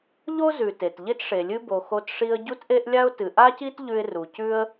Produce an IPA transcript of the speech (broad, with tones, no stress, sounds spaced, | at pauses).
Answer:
ʎ o˥ z ʉ˨ t e˨ t ʎ e˥ t ʂ e˨ lʲ ɨ˦ b o˨ x o˦ t ʂ i˦ ə̯ ɟ u˥ t ʔ e˥ ʔ lʲ a˥ ʊ̯ t ɨ˨ ʔ a˥ c i˥ t ʎ ʉ˦ ɪ̯ r u˨ c ʉ˥ ə̯